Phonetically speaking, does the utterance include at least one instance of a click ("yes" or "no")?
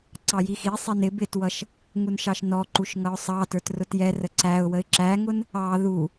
yes